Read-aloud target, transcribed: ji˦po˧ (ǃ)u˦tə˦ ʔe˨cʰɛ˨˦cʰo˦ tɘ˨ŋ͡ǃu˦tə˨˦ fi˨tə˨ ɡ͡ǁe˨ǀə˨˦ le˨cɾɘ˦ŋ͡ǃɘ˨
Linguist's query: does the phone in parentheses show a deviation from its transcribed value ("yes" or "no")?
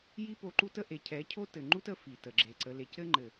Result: no